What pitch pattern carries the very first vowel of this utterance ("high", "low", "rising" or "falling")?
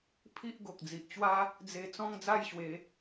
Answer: high